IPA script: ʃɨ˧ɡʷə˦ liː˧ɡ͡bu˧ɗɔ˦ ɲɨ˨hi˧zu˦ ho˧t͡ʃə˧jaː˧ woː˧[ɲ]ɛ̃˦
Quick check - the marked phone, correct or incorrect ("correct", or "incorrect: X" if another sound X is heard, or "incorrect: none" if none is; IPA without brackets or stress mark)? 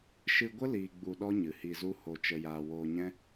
correct